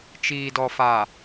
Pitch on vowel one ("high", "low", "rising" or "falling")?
low